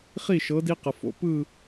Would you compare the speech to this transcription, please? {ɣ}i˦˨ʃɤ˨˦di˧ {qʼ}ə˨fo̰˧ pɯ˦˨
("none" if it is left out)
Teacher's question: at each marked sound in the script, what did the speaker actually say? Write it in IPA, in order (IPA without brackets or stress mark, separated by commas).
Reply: χ, q